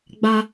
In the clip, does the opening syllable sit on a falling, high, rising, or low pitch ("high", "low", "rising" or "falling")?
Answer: high